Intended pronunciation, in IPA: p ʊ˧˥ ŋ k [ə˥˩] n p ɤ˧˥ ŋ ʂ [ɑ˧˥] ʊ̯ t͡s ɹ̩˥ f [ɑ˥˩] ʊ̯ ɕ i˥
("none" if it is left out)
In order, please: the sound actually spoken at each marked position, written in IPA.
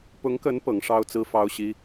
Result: ə˧˥, ɑ˥, ɑ˥

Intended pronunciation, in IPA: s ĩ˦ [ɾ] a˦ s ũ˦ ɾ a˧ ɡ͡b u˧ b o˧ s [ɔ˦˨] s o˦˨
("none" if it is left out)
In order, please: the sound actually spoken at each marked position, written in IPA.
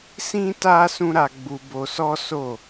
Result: t, ɔ˦

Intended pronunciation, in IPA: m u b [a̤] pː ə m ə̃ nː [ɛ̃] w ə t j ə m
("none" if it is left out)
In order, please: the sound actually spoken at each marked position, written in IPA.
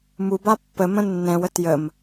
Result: a, ɛ̃

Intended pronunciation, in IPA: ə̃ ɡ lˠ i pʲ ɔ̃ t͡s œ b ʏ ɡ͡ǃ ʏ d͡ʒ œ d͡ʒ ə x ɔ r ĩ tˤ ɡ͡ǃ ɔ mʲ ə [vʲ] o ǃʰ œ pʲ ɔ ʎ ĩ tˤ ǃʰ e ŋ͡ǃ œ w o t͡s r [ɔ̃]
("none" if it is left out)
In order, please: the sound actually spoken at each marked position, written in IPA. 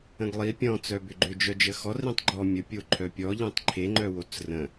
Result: pʲ, ə̃

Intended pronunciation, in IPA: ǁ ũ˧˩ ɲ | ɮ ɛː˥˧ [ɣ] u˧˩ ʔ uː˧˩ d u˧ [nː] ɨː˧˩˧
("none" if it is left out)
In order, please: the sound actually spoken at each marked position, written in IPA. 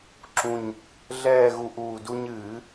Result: ɣ, ɲ

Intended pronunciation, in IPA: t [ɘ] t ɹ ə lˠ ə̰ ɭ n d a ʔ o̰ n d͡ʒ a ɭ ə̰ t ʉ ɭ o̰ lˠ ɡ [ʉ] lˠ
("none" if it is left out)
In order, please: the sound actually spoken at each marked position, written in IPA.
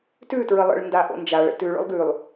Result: ʉ, ʉ

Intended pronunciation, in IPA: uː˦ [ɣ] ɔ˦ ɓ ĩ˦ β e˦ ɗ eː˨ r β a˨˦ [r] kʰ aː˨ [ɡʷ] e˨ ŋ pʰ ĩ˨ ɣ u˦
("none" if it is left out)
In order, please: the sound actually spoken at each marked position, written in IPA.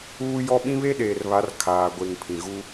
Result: j, r, ɡʷ

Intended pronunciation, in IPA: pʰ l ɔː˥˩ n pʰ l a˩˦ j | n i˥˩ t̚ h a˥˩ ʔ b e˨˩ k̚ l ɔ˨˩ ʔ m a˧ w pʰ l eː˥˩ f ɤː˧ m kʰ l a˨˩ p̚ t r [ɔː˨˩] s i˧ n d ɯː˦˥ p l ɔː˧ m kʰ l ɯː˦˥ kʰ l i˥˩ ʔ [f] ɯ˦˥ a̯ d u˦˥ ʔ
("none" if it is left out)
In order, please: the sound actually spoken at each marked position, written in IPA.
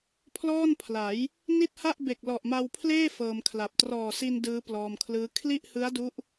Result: ɔː˨˩, h

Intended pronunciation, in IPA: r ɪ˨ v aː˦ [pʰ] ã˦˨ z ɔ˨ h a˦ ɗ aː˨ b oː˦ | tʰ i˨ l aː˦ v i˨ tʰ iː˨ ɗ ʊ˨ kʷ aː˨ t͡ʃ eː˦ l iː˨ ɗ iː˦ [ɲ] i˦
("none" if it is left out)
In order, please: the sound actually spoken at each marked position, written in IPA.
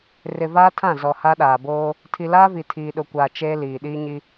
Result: tʰ, ɲ

